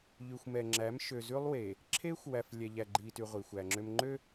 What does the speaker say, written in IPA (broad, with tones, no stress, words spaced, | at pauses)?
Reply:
ʎʉ˨xʷmɛ˨ŋ͡ǁæ˨˦m ʃø˨zʉ˦lˠwe˨ | ǁʰeː˦xʷwæ˨f lʲɛ˨ʎæ˨ɡ͡ǃiː˨ty˨ ʁʷi˨xʷæ˨ŋ͡ǁø˦m ŋ͡ǃø˦